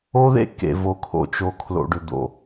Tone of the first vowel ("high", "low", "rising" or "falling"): high